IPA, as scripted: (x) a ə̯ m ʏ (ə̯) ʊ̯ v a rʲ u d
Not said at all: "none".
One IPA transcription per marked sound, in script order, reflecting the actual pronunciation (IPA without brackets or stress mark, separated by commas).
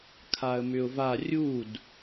kʰ, none